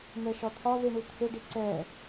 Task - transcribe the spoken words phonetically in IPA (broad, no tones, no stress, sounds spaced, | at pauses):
n̪ ɛ ʃ ɒ t̪ʰ ɒ ð i ɳ u t̪ʰ ʏ ɖ i ǀ ɛ